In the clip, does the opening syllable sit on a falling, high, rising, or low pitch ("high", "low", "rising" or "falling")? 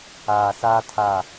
low